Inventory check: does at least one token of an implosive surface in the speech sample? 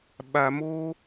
yes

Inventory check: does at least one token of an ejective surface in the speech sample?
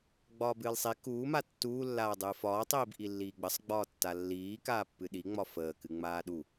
no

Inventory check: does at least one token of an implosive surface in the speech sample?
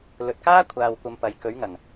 no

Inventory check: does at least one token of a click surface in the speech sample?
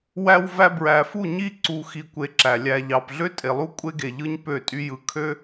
yes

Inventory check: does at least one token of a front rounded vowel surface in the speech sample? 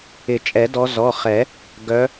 yes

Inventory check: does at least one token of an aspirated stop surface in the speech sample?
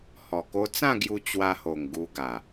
no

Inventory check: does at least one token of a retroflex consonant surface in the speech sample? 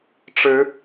yes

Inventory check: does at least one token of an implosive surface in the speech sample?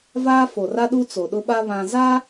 yes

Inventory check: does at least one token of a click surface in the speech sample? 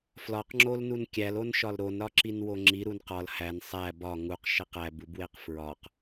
yes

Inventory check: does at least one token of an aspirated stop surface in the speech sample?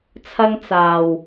yes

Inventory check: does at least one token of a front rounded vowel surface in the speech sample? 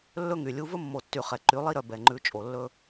yes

